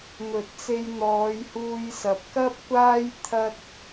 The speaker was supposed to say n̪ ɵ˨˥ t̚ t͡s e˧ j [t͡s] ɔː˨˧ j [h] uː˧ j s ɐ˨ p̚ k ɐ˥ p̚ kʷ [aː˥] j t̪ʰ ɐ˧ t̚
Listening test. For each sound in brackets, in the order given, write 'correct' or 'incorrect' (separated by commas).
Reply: incorrect, correct, correct